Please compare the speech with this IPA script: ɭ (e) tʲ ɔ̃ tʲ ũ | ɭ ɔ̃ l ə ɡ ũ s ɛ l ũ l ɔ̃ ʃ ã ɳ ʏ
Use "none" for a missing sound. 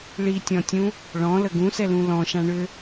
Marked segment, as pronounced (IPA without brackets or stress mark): i